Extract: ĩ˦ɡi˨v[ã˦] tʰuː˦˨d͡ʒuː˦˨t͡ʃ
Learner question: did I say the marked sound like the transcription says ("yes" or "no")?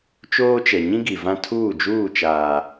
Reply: yes